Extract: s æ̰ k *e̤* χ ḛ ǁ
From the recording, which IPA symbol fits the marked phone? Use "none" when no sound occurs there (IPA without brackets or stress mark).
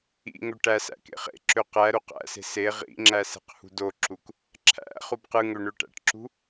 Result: ḛ